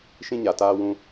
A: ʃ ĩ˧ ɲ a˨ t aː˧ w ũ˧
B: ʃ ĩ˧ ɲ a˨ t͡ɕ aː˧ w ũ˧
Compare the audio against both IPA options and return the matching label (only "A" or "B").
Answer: A